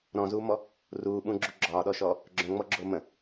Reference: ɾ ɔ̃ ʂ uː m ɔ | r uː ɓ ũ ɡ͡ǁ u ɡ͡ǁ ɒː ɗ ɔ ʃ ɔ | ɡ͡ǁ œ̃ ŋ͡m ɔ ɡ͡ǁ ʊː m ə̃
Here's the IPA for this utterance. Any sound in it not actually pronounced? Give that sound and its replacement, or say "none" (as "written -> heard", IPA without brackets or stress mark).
ʂ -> z